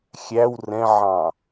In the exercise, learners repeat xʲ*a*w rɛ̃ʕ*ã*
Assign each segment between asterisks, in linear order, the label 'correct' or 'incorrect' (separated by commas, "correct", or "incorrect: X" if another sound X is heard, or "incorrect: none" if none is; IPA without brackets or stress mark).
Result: incorrect: æ, incorrect: ɑ̃